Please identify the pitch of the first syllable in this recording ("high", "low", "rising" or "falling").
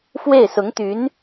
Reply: falling